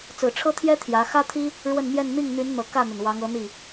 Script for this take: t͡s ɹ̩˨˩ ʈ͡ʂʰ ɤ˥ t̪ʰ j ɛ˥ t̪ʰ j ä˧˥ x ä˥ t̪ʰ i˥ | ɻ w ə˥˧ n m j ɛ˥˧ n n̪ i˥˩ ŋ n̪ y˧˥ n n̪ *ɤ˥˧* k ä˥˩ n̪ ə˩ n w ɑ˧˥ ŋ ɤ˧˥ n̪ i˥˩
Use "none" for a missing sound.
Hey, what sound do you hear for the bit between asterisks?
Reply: ɤ˨˩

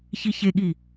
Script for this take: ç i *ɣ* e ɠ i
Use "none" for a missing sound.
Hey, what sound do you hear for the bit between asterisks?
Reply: ç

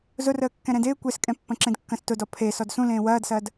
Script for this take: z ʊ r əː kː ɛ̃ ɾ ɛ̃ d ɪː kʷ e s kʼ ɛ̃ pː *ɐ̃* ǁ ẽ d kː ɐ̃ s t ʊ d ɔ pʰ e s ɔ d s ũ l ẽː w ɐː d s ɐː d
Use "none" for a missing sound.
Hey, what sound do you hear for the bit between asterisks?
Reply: ɐ̃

